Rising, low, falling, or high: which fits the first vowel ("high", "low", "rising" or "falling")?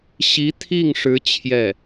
rising